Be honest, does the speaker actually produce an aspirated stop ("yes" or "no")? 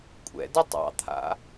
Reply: yes